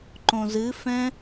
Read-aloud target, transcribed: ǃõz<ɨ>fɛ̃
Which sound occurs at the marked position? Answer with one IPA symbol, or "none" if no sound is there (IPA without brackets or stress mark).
ɨ